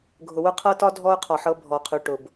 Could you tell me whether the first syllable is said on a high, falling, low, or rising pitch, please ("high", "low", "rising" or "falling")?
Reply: low